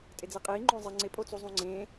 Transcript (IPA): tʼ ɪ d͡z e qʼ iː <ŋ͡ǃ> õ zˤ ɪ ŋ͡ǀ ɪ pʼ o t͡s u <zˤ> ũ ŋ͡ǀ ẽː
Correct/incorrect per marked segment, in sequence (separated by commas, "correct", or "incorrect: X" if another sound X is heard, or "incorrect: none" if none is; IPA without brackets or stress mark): correct, correct